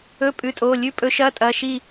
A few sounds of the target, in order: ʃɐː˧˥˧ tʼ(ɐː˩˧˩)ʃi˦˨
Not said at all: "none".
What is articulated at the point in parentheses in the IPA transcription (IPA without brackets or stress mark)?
ɐː˩˧˩